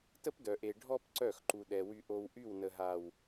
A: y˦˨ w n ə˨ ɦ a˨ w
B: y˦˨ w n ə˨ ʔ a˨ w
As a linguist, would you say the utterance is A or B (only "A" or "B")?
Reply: A